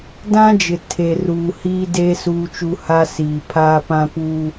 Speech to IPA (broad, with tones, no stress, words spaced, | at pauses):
dã˦d͡ʒɪ˨ tʰe˨ ruː˨ hiː˦deː˦ suː˦t͡ʃu˦ ha˦siː˨ pʰaː˦pã˦puː˦